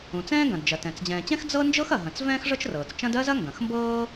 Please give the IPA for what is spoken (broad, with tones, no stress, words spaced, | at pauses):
ũ˩t͡sɛ̃ː˥ɡɐ̃˩dd͡ʒɐ˩ tɛ̃˩t͡s d͡ʑɛ̃ː˩t͡ɕɛ̃˥x d͡zɤ˥ nd͡ʒɤ˥xɐ˩ɦɐ̃˩t͡s vɛ̃ː˥xʐɤ˥t͡ʃrɤː˩t͡st͡ʃɐ̃˥d ɜ˥zɐ˥ ŋɡɐ̃˩xmbɤː˥